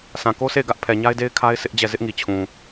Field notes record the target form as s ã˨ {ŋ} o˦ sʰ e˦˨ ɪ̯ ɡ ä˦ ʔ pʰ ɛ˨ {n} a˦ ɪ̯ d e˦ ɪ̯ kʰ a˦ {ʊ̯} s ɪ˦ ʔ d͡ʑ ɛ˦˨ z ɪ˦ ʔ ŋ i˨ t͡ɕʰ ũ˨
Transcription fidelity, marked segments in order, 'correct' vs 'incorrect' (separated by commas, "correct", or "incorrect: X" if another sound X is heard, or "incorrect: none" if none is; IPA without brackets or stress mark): incorrect: k, incorrect: ɲ, incorrect: ɪ̯